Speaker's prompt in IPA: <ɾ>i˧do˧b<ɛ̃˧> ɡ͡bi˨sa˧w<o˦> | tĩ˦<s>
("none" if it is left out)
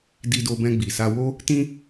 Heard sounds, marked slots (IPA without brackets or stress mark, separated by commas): d, ɛ̃˧, o˦, none